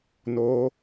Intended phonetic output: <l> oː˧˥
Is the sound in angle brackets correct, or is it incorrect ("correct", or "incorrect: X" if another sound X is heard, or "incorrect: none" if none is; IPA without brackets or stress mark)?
incorrect: n